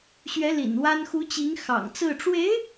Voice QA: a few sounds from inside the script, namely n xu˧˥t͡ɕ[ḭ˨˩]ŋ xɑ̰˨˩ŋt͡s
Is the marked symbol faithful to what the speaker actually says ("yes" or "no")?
no